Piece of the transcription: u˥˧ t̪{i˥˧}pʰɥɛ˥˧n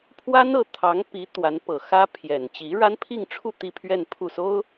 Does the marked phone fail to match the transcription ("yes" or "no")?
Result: no